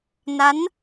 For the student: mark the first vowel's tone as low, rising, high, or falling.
rising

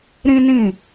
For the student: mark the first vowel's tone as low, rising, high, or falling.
high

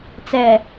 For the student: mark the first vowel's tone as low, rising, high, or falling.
low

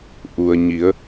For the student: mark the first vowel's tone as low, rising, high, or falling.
low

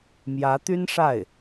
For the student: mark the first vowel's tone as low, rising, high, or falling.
rising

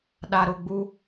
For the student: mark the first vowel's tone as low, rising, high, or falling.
low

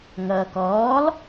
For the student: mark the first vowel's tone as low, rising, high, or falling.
low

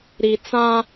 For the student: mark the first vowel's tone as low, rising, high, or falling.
low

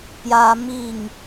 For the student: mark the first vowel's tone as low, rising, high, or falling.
high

